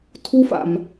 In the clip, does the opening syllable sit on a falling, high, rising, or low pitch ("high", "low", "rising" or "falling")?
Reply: high